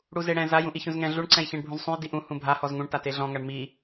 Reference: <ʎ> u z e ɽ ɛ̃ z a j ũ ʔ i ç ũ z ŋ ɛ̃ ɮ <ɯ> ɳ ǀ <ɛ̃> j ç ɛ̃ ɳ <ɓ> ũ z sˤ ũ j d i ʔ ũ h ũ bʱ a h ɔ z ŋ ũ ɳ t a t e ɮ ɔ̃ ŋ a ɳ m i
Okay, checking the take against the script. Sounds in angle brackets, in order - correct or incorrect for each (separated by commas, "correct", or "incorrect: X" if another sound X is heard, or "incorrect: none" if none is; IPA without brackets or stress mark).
incorrect: ɽ, incorrect: u, correct, incorrect: bʱ